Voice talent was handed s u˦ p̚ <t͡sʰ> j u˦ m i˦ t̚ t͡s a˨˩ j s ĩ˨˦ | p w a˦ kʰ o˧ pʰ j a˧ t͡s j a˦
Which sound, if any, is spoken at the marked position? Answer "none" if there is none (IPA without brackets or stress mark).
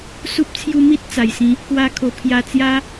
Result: t͡sʰ